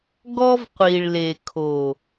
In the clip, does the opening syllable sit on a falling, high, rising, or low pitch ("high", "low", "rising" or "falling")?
high